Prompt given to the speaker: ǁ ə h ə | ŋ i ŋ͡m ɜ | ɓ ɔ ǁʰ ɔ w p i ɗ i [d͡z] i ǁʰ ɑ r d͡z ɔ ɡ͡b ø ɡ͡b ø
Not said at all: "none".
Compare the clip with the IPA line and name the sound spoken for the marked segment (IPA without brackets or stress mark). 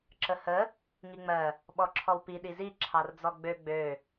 z